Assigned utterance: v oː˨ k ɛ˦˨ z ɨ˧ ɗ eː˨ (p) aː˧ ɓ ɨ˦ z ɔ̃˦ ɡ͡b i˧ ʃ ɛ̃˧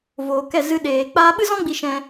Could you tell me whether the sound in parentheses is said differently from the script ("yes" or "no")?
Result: yes